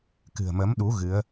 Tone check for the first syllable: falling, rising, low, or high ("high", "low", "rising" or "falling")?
low